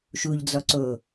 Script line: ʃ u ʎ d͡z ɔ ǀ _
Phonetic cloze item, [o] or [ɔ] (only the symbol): o